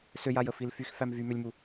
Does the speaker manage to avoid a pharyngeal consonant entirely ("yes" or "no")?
yes